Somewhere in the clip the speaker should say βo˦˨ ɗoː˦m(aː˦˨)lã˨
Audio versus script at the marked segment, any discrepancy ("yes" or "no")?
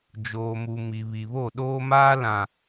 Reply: yes